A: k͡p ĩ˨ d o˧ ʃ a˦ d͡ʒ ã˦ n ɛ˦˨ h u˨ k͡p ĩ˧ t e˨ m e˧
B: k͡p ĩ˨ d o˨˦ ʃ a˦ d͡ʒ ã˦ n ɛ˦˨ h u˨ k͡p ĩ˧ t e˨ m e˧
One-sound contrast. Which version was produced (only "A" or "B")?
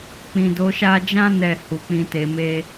B